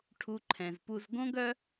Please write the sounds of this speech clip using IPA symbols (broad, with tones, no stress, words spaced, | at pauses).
ʈʰu˧ǃʰɛ̃˨zpu˧z ɡõ˦ɡœ˦